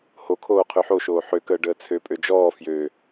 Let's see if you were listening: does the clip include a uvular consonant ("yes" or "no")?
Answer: yes